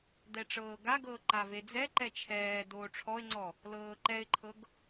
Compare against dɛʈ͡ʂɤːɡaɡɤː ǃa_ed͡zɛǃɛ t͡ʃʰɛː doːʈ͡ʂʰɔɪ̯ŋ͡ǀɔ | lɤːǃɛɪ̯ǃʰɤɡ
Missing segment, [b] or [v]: v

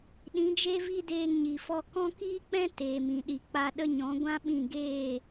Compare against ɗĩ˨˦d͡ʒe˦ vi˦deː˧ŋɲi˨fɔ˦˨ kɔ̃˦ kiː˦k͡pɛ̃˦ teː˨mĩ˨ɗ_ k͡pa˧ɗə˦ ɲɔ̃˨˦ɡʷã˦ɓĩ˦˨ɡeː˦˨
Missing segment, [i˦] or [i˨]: i˨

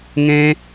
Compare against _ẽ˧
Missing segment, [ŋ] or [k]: ŋ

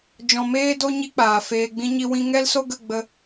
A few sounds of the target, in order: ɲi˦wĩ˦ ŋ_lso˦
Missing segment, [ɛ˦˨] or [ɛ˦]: ɛ˦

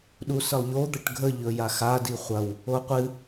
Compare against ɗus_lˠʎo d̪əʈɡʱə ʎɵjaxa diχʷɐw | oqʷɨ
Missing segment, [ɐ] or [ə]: ə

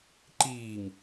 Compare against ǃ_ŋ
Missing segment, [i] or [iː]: iː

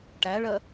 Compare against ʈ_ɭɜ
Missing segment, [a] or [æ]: æ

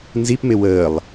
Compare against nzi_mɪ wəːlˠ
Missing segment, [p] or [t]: p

